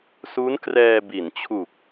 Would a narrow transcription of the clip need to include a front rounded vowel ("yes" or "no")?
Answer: no